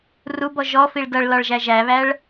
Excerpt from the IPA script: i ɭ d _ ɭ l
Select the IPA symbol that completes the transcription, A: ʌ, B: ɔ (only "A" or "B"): A